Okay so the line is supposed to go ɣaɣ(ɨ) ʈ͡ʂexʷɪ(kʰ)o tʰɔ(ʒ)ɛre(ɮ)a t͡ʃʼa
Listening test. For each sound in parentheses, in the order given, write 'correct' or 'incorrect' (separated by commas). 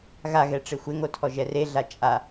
incorrect, incorrect, correct, correct